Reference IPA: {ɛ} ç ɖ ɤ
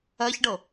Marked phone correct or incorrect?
incorrect: ɜ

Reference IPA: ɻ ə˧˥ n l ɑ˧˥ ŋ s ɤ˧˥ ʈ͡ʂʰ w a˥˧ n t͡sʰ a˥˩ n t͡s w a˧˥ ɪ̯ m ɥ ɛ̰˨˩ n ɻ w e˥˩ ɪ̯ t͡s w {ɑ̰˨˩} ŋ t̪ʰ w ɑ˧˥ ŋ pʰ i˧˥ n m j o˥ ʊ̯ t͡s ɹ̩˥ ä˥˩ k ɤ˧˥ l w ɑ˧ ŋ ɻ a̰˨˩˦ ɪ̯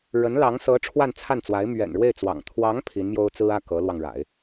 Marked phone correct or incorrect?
correct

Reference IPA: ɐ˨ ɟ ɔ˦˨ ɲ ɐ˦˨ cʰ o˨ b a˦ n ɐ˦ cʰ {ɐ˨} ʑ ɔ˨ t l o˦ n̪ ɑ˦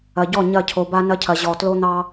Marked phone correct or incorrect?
correct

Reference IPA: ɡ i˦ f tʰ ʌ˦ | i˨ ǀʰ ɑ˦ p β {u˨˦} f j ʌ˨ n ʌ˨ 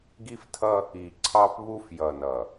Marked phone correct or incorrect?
incorrect: u˦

